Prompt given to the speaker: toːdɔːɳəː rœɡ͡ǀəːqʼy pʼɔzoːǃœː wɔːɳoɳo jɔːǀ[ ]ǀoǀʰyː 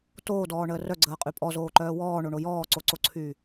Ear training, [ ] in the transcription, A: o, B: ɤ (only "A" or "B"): A